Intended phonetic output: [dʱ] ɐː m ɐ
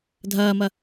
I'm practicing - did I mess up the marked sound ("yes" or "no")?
no